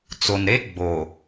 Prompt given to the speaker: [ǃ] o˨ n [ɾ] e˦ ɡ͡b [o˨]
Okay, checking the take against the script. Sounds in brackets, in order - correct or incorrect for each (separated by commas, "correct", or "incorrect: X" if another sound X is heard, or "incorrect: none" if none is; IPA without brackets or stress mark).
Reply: incorrect: t͡s, correct, correct